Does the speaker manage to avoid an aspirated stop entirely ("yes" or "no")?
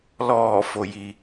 yes